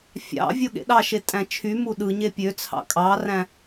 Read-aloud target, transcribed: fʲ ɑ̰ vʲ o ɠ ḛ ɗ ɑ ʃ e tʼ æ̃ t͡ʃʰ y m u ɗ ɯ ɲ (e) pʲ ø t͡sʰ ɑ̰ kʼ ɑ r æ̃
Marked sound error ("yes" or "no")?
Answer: no